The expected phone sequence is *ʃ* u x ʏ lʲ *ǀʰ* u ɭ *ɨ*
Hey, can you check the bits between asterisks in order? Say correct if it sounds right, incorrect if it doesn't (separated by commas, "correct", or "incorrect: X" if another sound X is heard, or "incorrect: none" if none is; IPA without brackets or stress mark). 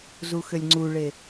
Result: incorrect: z, incorrect: ŋ͡ǀ, incorrect: e